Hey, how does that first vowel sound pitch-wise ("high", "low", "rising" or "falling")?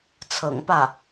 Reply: low